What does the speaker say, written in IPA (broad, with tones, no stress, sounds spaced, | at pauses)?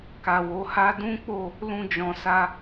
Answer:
k a˨ w o˨˦ h a˦ d ũ˦ k͡p o˦˨ | l ũ˧ d͡ʒ ɔ̃˨ s a˧